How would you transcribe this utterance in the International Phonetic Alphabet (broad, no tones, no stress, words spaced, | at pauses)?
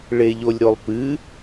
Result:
ɭeʎolʲɾolˠpɨ